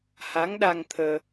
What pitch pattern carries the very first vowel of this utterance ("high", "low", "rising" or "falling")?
rising